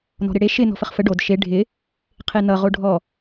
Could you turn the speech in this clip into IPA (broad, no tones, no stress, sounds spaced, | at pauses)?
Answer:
n ɔ̤ ɾ ɪ ɽ e ʃ ɪ n ɔ̤ f ə χ f ə ɖ o d ʃ e ɖʱ ɪ | qʰ e n ʌ ʁ o ɖʱ ɔ